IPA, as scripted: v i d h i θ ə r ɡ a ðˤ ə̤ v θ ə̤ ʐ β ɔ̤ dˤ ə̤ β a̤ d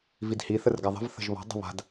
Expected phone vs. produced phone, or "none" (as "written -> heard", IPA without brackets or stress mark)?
ʐ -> ʒ